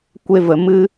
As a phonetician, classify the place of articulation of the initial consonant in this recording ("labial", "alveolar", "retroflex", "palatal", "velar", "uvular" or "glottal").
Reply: velar